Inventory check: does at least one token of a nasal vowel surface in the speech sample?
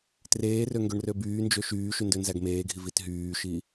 no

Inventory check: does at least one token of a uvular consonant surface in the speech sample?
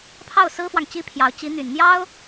no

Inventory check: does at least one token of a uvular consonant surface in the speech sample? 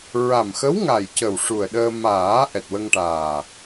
no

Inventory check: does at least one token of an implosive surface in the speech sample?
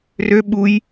yes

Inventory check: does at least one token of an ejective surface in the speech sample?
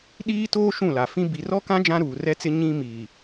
no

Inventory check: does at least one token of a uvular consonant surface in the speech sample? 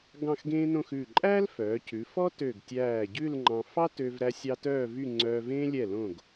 no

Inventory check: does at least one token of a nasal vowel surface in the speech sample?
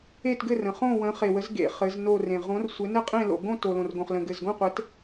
yes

